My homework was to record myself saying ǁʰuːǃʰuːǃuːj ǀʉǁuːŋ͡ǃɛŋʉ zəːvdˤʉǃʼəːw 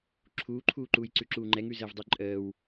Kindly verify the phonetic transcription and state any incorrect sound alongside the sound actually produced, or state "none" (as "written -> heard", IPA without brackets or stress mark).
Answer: none